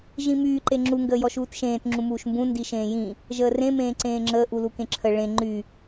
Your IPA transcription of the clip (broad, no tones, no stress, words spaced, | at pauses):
ʒĩmyː ǃeŋ͡ǁu ŋɡəːjɔʃuːtʃẽːt ŋ͡ǁũmuːʃmbũ ndiʃẽːjĩ | ʒəːrẽ mẽːǀẽːŋ͡ǁəː ʔulukẽǁʰə ɭẽ ŋ͡ǃy